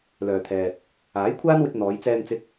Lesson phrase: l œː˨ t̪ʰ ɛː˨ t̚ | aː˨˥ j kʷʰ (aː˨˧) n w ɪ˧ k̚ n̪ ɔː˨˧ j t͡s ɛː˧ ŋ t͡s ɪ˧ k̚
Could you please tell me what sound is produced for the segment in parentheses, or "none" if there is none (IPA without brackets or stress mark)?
aː˥